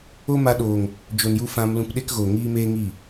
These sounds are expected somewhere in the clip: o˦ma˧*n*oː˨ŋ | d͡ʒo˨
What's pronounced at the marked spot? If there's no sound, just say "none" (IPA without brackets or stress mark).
ɗ